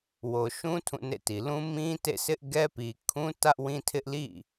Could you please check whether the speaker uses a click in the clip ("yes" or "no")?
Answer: no